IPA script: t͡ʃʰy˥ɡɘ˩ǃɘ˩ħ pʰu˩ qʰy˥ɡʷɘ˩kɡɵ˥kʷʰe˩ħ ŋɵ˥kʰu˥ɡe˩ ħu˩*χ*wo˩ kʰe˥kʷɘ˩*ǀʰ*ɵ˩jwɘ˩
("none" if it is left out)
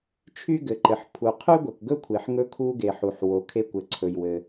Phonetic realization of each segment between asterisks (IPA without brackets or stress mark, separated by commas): ħ, ǀʰ